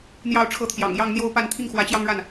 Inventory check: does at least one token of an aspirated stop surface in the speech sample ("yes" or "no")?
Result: yes